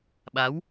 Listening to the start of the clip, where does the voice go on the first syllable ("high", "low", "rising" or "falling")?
rising